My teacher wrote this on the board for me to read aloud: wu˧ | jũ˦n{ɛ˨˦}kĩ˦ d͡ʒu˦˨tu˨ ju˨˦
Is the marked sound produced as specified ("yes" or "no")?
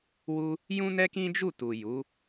no